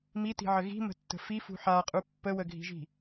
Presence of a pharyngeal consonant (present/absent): present